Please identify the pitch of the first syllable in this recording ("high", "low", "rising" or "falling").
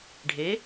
rising